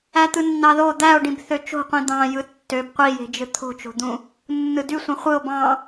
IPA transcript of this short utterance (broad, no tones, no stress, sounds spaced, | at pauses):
æ t̪ ɯ nː ɑ ð o d̪ æ o̯ ɖ ĩ b θ ø t͡ʃ o̤ qʷ ĩ d̪ ɑ̃ j ɯ tː ø b qʷ i j e̤ d͡ʒ ɯ t̪ʰ o̤ t͡ʃ o̤ d̪ ũ | nː ɯ d y sʷ ĩ χʷ ɯ o̯ b ɑ̃